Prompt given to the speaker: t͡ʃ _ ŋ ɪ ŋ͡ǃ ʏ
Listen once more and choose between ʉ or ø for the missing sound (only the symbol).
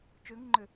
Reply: ø